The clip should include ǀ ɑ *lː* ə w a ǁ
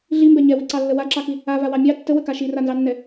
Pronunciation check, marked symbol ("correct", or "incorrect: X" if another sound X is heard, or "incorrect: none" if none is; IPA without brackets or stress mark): correct